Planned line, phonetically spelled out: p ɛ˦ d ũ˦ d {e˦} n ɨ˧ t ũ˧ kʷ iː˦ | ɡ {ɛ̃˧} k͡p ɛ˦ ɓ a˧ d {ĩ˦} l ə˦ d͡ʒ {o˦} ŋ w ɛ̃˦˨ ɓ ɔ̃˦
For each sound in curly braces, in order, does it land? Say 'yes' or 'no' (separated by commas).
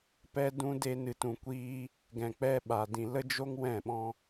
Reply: yes, yes, no, yes